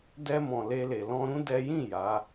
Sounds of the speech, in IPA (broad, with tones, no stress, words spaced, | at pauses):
dɛ˧mɔ̃˨ le˧le˨ lɔ̃˧ɾũ˦ dɛ˦ jĩ˦˨ ja˨˦